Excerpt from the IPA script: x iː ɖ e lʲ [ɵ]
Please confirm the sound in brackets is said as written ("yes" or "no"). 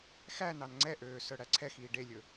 yes